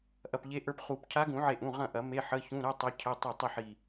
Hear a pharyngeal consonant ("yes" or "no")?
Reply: yes